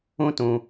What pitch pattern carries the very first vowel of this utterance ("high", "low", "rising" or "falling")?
high